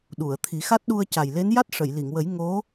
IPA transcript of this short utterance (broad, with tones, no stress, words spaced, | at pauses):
ɗu˨˩˨ə̯t̪ʰi˨˩˦xa˦˥t̚ ɗu˧ə̯ca˨˩jle˧˥n ja˦˥t̚ʂə˨˩˨jli˨˩˨ŋwə˨˩˦j ŋo˧˥